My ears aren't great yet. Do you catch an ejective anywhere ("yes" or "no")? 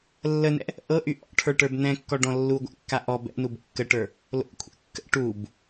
no